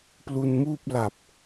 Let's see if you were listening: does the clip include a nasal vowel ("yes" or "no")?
no